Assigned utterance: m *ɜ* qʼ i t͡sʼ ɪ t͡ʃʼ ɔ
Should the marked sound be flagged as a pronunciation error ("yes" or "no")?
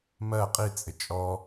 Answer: no